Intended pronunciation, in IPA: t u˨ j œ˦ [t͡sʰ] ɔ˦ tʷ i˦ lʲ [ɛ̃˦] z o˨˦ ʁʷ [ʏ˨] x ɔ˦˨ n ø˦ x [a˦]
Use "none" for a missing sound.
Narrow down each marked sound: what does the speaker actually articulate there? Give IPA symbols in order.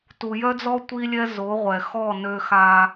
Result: d͡z, ɛ˦, ɛ˨, a˦

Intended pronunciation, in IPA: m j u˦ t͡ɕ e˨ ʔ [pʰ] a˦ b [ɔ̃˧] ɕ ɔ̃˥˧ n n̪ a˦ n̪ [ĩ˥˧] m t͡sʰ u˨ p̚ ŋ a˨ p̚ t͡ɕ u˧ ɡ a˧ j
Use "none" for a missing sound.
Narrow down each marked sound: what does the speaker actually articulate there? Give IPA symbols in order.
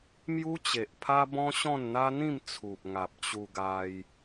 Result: pʰ, ɔ̃˦, ĩ˥˧

